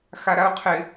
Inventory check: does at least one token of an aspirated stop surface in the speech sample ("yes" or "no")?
yes